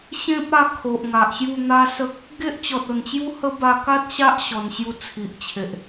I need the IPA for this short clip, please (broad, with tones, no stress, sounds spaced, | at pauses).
ɕ ẽ˦ p̚ a˧ kʰ o˨ ʔ ŋ a˨ ʔ ɕ j u˥˧ n̪ a˦ s ə˦ k̚ | ɡ e˦ ʔ t͡ɕ ɔ˨ t̚ o˨˩ n t͡ɕ j u˦ h ə˦ b a˧ k a˦ t̚ ɕ a˦ ʔ ɕ ɔ˧ n ɕ j u˦ t͡sʰ i˨ ʔ t͡ɕʰ e˨ ʔ